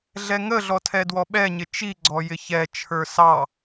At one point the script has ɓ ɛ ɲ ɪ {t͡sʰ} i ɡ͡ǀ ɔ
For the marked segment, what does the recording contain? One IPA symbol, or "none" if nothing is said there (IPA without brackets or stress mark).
t͡ʃ